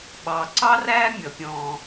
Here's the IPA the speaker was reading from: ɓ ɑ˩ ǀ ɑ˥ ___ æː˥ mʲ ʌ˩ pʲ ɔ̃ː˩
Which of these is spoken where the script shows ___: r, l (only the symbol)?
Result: r